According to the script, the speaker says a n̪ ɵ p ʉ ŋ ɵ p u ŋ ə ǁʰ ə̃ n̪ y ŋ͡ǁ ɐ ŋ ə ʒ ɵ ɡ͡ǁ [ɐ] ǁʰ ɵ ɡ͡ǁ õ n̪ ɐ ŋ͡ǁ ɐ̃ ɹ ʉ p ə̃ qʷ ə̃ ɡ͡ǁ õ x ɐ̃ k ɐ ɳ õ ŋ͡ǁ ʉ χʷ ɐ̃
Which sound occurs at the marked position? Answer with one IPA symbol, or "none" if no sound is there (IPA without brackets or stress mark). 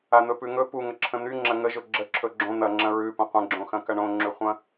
ə